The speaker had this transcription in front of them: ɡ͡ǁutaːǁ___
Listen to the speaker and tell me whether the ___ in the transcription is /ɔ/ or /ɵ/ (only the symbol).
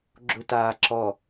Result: ɔ